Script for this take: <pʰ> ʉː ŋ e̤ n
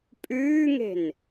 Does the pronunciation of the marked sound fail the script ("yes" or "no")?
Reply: yes